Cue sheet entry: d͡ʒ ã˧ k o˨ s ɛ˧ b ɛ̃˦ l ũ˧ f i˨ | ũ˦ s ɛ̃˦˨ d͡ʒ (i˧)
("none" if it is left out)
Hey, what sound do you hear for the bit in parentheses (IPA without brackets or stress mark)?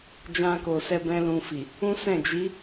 i˨˦